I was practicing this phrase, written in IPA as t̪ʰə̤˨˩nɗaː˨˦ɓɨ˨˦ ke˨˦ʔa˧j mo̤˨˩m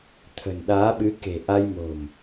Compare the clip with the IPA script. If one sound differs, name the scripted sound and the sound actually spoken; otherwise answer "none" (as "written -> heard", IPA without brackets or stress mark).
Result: e˨˦ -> e̤˨˩